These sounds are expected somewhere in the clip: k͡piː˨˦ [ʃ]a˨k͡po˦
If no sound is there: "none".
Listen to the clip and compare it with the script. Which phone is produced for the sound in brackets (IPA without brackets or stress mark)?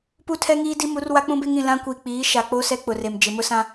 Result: ʃ